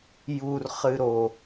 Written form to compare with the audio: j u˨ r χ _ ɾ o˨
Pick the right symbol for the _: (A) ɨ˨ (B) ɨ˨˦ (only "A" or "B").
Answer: A